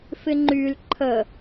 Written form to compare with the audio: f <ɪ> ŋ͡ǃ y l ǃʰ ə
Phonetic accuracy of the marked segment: correct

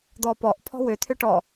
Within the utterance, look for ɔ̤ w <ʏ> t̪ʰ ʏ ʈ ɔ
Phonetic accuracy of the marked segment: correct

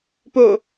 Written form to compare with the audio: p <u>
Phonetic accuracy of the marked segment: incorrect: o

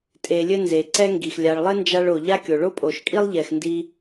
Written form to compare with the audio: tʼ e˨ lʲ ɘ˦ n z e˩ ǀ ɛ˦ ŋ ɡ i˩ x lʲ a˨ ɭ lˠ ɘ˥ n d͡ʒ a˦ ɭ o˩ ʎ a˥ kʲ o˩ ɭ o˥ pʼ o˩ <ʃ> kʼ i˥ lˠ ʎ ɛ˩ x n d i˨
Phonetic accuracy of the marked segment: correct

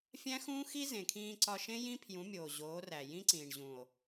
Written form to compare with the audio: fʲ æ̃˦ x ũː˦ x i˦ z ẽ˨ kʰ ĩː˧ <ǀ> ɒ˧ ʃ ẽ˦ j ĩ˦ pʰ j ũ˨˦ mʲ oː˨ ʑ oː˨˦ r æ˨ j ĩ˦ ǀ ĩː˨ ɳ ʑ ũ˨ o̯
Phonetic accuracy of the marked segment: correct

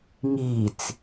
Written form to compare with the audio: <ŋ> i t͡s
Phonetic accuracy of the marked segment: correct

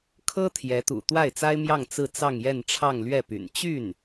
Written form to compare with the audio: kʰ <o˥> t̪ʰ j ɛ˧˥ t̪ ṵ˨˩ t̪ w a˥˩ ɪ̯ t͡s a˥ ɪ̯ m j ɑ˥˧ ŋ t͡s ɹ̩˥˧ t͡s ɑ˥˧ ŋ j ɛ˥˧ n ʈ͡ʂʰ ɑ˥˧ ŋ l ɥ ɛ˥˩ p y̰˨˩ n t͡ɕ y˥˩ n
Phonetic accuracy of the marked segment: incorrect: ɤ˥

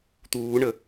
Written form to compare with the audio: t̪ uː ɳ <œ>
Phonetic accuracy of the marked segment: incorrect: ə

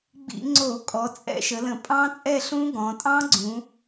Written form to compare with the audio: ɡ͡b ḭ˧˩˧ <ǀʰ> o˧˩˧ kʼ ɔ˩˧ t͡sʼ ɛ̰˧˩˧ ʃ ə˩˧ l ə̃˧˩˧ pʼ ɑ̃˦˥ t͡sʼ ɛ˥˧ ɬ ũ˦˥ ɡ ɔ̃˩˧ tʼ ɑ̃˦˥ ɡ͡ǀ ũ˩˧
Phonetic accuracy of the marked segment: incorrect: ŋ͡ǀ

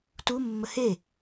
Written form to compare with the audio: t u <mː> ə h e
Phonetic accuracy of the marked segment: correct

